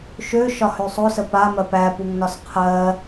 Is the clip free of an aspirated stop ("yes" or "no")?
no